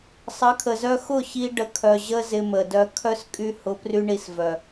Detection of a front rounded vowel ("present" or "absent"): present